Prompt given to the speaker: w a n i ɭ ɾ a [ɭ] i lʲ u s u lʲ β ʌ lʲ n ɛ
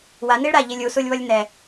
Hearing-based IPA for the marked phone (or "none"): ʎ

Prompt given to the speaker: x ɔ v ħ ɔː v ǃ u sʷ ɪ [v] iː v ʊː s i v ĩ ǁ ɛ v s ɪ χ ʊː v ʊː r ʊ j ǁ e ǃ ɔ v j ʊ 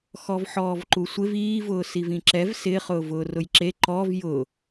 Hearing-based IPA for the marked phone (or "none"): v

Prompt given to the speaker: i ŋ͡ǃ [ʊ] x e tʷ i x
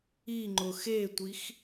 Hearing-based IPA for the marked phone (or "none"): ʊ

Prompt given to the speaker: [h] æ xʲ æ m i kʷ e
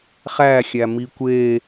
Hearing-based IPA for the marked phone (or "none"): χ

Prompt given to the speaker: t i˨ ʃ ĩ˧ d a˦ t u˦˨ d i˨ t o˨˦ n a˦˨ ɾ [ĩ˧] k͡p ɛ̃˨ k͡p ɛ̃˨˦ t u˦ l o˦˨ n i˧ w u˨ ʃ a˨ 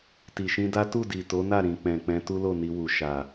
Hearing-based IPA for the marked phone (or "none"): ĩ˨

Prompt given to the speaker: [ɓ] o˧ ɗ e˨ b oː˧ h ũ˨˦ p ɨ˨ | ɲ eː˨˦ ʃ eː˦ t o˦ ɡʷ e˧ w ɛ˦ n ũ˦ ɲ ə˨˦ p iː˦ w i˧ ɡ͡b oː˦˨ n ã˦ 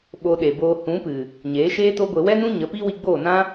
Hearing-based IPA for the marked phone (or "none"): ɓ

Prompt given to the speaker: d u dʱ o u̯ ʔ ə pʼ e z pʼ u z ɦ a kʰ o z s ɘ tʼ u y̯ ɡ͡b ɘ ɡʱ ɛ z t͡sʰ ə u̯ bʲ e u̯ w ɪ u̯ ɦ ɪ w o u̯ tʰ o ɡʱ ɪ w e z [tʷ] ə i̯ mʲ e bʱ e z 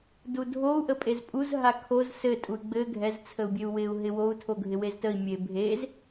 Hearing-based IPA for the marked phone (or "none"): t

